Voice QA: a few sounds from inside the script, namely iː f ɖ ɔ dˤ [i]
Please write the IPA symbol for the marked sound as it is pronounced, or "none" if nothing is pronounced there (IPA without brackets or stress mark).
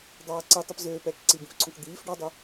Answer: y